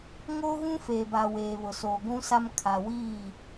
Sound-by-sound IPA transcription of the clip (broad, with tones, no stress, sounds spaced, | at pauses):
ŋ oː˦ ɣ ũ˦ f eː˨ b a˨ w eː˨ β ʊ˨ s oː˨ ɡʷ ũ˦ s a˦ m kʰ a˨ w iː˦˨